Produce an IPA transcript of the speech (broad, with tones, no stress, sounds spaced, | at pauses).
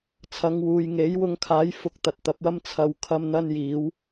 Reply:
t͡sʰ ɐ˨˧ ŋ w uː˨ j ŋ e˨˥ j w ʊ˨˧ ŋ kʰ aː˨˥ j f ʊ˧ k̚ t̪ ɐ˨ t̚ t̪ ɐ˨˥ p̚ w ɐ˥ m t͡sʰ ɐ˨˧ w kʰ ɐ˧ m n̪ ɐ˥ n j iː˨˥ w